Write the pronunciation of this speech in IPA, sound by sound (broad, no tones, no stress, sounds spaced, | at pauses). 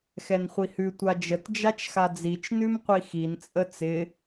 x ɛ n χʷ i h ʉ tʷ a d͡ʒ ə t d͡ʒ a t͡ʃ x a d͡z i t͡ʃ n ʉ m qʷ i x i n t͡sʼ ə t͡s ɪ